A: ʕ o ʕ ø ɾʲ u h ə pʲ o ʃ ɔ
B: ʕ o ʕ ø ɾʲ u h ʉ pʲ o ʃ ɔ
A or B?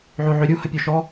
A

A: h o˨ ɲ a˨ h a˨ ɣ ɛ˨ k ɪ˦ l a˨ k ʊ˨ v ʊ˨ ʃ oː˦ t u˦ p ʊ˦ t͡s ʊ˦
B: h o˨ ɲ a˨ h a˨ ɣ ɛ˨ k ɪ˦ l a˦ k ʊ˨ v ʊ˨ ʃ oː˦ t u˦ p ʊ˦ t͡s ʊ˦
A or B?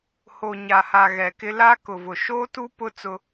B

